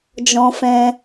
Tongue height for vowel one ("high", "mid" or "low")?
mid